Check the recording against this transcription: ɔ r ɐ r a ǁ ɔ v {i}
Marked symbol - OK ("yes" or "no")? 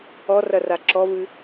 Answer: no